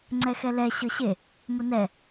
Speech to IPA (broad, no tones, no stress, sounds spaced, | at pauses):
ŋ͡ǀ ɛ x ɛ l ɛ ɕ ɤ ɕ e | m ʊ n ɛ